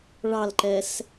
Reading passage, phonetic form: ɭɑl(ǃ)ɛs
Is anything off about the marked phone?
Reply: no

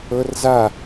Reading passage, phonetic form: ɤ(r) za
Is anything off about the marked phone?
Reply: no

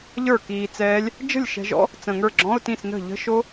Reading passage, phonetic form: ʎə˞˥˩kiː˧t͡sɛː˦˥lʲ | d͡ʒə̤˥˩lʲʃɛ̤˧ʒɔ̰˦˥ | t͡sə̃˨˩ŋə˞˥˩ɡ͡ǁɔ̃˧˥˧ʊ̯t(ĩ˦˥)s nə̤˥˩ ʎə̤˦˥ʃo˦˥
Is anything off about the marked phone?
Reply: yes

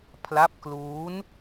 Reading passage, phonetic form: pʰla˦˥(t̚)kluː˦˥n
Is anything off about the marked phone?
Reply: yes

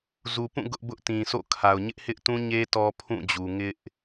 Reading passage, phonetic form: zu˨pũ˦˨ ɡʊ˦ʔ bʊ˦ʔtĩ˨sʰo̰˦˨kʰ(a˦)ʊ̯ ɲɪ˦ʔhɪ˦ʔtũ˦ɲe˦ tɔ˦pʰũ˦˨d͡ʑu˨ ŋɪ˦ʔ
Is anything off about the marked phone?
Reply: yes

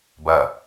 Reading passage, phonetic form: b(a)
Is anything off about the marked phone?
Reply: yes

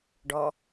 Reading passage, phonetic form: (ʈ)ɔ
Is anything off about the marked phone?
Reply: yes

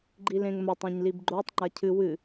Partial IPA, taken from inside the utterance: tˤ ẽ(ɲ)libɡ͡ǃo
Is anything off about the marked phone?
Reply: no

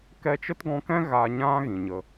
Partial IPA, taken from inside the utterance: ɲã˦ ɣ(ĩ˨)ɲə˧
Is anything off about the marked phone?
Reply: no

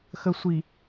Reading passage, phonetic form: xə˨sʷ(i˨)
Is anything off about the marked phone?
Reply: no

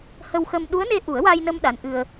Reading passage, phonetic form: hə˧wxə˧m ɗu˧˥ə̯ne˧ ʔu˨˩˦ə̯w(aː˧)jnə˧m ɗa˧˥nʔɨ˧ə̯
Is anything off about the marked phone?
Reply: no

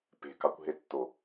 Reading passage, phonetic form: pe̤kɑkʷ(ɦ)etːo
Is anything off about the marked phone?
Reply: no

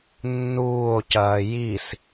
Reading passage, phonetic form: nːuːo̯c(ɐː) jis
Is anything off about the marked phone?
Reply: no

